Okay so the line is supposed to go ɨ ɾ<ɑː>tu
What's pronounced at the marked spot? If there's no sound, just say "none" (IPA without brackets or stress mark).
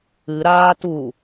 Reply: aː